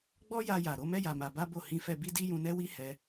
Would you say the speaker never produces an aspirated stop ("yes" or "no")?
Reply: yes